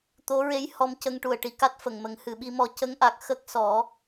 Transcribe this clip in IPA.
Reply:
t̪ o˧˥ ɹ e˧˥ j h ɔ˧ m c ə˧ ŋ ʈ u˨˩ ə̯ ʈ i˨˩ k a˦˥ t̚ f ə˨˩˨ ŋ m ə˨˩˦ ŋ h ɨ˨˩˨ ɓ i˧ m ɔ˧ c ə˧˥ ŋ ʔ a˨˩ k̚ x ə˦˥ k̚ s ɔ˨˩˦

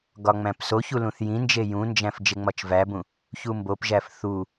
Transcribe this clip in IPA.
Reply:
ɡ ɒ ŋ͡m æ̃ p s o ç u l ũ θ j ĩ n d͡ʒ e j ũ n d͡ʒ æ̃ f d͡ʒ e ŋ͡m ɒ t͡ʃ v æ b ũ | ç u m b o p ʒ æ f θ u

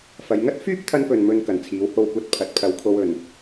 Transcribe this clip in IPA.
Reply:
f ɐ˨˧ j ŋ ɐ˥ t̚ f yː˥ p̚ t̪ʰ ɐ˧ n p ɵ˨ n m ɵ˧ n k ɐ˨˩ n t͡sʰ iː˨˥ w h o˧ w kʷ ɐ˧ t̚ pʰ ɐ˨˥ t̚ pʰ ɐ˨˧ w kʰ o˧ w ɵ˨ n

